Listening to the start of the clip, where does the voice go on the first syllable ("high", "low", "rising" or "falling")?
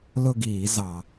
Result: falling